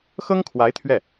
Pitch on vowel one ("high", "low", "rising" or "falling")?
high